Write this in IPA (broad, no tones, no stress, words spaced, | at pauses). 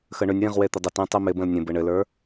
xəɳʏnʲwĩʁ wet̪ɪdˤətĩ tˤimɪbə̃l nʲə̃bɘ ɳɘlə˞